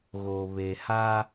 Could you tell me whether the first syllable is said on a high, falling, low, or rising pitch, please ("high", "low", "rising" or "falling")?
low